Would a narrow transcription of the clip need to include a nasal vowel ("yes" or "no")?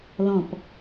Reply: yes